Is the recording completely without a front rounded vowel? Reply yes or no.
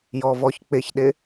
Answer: yes